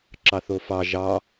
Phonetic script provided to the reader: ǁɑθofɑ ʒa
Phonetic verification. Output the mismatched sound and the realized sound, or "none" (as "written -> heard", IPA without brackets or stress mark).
a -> ɑ